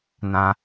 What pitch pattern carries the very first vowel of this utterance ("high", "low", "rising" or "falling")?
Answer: high